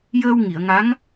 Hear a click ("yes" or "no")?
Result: no